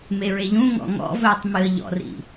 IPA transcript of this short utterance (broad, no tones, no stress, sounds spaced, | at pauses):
m e ɹ e ʎ ũ ŋ ɔ̰ ŋ ɔ̰ v ɵː tˤ m ɨ ə̯ ʎ ɔ̰ r ḭ